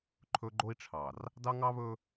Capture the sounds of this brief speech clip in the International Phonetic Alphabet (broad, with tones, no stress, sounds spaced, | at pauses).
ǃʰ ɵ˦ ɡ͡ǃ o˦ i̯ ʈ͡ʂʰ ɑ˨ r | d ɑ˦ ŋ ɑ˦ β ɵ˦